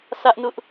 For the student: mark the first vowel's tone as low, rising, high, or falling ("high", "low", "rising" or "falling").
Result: high